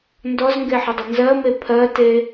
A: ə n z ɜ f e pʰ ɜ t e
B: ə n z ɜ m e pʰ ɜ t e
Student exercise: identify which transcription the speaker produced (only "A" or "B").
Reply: B